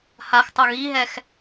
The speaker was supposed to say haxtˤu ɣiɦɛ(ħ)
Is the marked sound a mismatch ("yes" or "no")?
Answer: yes